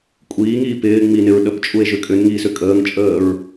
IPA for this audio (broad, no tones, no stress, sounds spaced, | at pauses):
kʷʼ iː ŋ iː p ɪː ŋ͡m i n ɪ ɹ ɗ ə p t͡ʃʼ u e̯ ʒ ʏ kʼ ʏ n ŋ iː s ʏ kʼ əː ŋ t͡ʃʼ əː ɹ